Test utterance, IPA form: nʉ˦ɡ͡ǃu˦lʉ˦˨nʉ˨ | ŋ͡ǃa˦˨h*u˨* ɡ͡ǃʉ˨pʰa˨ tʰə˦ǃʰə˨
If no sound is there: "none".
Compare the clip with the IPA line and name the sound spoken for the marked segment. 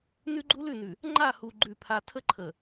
u˨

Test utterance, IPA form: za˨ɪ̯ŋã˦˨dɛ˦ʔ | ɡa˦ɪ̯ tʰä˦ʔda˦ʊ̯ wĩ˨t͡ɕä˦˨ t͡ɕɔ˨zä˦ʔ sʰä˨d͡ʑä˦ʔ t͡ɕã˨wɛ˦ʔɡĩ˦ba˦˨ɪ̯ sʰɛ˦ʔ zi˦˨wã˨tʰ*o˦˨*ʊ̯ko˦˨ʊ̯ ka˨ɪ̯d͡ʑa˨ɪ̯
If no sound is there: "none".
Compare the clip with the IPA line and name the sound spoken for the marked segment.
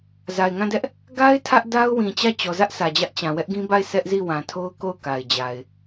o˦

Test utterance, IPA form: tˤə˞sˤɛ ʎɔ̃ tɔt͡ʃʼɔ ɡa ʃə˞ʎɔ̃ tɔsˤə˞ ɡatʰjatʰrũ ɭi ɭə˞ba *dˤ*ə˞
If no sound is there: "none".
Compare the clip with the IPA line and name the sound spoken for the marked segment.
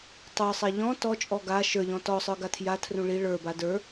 d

